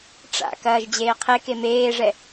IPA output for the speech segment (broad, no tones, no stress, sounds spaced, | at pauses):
ʈ͡ʂ a̰ k ɐː ʒ d͡ʑ eː qʰ e k e m eː ʐ ɛ